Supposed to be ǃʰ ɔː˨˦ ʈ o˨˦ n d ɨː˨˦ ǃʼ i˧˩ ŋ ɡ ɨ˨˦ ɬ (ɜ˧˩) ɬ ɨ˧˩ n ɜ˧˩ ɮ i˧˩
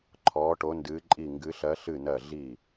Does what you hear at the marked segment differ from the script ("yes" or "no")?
yes